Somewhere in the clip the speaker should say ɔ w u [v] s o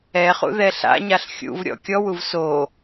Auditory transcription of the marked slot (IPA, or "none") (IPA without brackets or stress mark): v